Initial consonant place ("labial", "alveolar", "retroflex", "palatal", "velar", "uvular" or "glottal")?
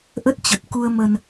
glottal